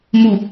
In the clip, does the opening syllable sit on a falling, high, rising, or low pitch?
low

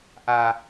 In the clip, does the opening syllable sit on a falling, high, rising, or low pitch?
low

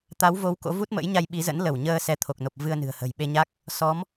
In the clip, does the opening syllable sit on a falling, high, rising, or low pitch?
rising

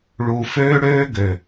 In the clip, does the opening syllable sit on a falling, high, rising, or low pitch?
low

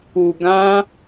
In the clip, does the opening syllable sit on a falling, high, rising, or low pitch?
low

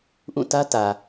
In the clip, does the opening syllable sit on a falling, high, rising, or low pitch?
falling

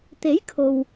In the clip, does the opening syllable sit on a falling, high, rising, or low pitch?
rising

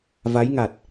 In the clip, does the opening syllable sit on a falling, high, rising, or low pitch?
rising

